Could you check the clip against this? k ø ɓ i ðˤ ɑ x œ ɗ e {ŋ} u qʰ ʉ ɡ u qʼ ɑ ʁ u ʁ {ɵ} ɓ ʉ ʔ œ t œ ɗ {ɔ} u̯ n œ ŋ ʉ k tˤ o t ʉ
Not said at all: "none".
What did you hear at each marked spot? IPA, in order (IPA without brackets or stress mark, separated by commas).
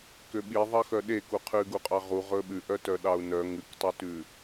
k, ɵ, ɑ